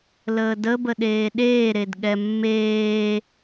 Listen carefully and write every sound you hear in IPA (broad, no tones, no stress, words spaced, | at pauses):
ləːdəbə ɗeːɗeːɾed ɠɛmːeː